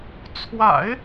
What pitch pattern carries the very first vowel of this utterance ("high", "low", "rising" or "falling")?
low